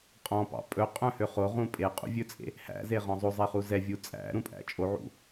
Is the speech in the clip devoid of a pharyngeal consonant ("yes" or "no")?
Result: no